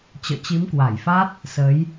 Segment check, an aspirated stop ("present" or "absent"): absent